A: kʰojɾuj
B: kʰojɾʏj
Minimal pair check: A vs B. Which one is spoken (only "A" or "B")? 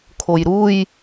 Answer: A